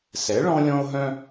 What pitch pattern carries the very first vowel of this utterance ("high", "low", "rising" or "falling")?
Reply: rising